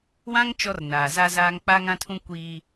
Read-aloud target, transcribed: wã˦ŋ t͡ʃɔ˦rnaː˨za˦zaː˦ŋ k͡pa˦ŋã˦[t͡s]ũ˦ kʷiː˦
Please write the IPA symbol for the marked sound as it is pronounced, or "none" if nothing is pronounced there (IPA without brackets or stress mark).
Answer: tʰ